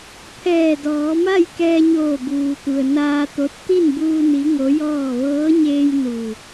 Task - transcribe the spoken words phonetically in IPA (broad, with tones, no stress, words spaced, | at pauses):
pʰɛː˧˩dɔː˩˧ma˥˨j kɛː˧ɲoː˧˩ buː˩t̪u˩ə̯ naː˧t̪o˧˥t̚ t̪i˥˨nbuː˧ ni˧˥ŋo˧˥jɔː˥˨ ʋɤː˧˥ɲeː˧j nu˧˩